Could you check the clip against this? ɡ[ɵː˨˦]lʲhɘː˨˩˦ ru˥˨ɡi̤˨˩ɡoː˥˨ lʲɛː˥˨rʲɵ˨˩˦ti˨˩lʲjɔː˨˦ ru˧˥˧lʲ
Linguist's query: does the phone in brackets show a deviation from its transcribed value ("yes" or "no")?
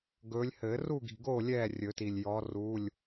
no